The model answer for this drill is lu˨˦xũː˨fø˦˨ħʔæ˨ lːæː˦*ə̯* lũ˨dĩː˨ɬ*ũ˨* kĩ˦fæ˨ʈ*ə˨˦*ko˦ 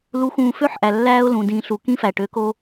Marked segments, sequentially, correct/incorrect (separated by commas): incorrect, incorrect, incorrect